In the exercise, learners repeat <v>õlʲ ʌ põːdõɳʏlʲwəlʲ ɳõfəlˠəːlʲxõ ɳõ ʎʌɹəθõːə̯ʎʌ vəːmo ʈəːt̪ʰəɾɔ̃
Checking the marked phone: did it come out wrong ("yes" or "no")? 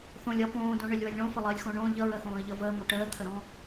yes